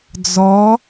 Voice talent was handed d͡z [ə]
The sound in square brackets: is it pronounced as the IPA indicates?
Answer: no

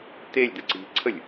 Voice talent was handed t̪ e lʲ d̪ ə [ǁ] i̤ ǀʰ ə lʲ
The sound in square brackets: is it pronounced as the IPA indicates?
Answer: no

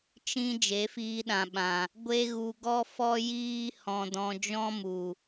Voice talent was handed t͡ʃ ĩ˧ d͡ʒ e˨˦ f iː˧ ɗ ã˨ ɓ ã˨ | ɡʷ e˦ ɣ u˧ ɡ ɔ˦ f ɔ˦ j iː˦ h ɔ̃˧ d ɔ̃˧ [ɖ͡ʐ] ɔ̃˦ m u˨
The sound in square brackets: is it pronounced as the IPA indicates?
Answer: no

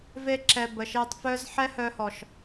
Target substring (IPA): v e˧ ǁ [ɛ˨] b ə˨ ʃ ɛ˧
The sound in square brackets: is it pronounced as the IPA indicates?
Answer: yes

